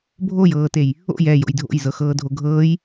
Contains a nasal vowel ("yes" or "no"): no